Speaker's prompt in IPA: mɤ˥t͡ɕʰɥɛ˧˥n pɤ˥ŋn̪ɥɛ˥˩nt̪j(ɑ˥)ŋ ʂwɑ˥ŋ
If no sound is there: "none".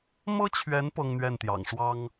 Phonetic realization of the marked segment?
ɑ̰˨˩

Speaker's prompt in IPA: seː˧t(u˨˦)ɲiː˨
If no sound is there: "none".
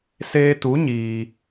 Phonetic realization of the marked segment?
u˨˦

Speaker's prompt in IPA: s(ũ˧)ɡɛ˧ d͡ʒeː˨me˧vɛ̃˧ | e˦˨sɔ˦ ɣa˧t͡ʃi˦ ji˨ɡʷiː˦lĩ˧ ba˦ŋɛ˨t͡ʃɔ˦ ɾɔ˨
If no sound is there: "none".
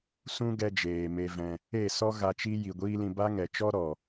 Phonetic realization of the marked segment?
ũ˦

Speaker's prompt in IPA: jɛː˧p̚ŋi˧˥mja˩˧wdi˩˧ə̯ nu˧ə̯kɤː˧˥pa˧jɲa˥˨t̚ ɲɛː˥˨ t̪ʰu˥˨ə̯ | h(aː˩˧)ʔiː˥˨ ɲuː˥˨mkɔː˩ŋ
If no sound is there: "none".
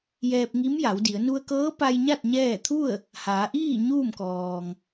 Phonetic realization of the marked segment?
aː˩˧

